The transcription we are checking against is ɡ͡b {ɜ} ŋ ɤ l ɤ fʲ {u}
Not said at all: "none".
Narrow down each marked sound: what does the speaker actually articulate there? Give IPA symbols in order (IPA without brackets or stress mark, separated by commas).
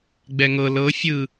ɛ, ɯ